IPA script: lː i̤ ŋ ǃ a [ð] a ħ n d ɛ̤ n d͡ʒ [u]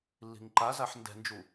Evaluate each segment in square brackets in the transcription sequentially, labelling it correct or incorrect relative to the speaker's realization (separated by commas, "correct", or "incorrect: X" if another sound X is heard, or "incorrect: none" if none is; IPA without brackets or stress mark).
incorrect: z, correct